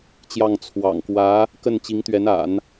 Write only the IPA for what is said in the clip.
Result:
t͡ɕjɑ˥˩ŋ t͡sʰwɑ̰˨˩ŋkwä˧˥ | kə˥˩nt͡ɕi˧˥ŋt̪ɥɛ˧˥na̰˨˩˦n

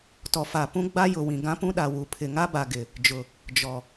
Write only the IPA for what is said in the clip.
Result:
tɔ˨fa˨pũ˦ ɡ͡ba˦ jʊ˨ wĩ˨ ɡã˦pũ˦ɗa˨ wu˨ pʰɪ˨ŋa˦ba˨ ɡɪ˨ | d͡ʒʊ˨ | d͡ʒɔ˨

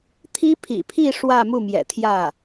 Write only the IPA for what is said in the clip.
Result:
t̪ʰi˥pʰḭ˨˩pʰi˥˧ ʂwä˥˧mu˥˩mjɛ̰˨˩t̪ʰjä˥˩

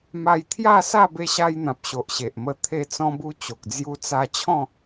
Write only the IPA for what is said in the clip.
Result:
ma˧jt̪ʰja˥˧sa˥˧ be˧ɕa˧jn̪ã˨p̚ ɕo˨ʔɕe˨ʔmə˧ t̪ʰe˧t͡sɔ̃˧bu˧ t͡ɕo˨k̚d͡zju˧t͡sa˧t͡ɕʰɔ̃˥˧

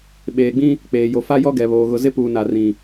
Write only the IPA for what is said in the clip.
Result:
ɓeː˨ɡ͡bĩ˦ | k͡peː˨jo˨fa˦ jɔ˦ɡɛ˨βoː˨ ɣʊ˨ zɪ˦puː˨ na˨rĩ˨

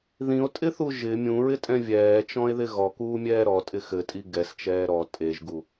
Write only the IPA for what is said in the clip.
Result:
ðĩo̯tʼɪθu ʒɪ mʲũɹɪtʼɛ̃ vʲɛːt͡ʃɔ̃e̯ðɪ ɣɔkuːmʲɛː ɾɔtʼɪ xɘtʼi ɡɛst͡ʃɛː ɾɔ tʼeʒɡu

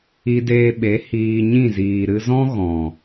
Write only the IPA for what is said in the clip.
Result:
i˧deː˧ɓe˨˦ hiː˧ɲĩ˦˨ ziː˨ɾɨ˧zɔ̃˦ ɣɔ̃˨

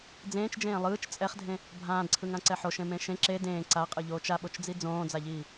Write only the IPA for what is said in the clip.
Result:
d͡zẽːt͡ʃd͡ʒẽː lˠɯːt͡ʃ t͡sʼɛχdʱẽ | bʱãːdǀʰɯŋãǀɛ ħoʃẽmẽ ʃẽ ǁe dẽː ǀaqʼɯʎoːt͡ʃ aɓot͡ʃd͡zi d͡zõːd͡zaʎiː

